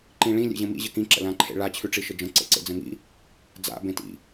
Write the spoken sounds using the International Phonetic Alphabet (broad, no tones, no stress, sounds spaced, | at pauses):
ǃ ĩ ɭ ĩ lʲ ḛ ʑ ə̃ m ḭ ʑ ə k ĩ ǁ ə̰ l ã ǃʰ ḛ ɭ a t͡ɕʰ ʉ ʈ͡ʂ i ʃ ə d͡ʒ ə̃ ǀ ḛ ǀ ḛ d͡z ə̃ ŋ ḭ | d͡z a̰ b ẽ t ḭ